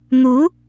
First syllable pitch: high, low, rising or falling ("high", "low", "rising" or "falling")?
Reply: rising